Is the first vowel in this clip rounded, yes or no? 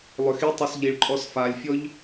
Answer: yes